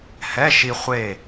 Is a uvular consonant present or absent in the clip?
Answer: present